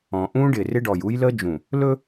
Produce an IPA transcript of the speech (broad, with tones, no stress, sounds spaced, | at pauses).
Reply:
ɔ̃˨ ʔ ũ˦ ɖ ɪ˨ r ɪ˦ ɖ ɔ˨ j u˦ j l ə˦ d͡ʒ ũ˨ | l ɵ˦